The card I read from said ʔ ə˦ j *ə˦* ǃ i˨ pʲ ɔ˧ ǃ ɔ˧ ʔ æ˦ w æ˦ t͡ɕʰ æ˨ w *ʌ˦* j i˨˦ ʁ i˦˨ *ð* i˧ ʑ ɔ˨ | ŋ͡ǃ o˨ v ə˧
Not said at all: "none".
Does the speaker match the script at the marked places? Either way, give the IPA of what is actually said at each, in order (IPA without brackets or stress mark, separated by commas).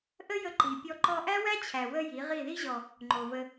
ə˧, ə˦, ð